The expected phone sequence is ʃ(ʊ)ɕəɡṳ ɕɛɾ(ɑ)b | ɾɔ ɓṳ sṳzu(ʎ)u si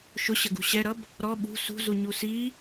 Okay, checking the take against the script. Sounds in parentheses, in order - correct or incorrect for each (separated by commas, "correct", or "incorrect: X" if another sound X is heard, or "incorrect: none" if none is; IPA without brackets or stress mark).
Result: correct, incorrect: ʌ, incorrect: ɲ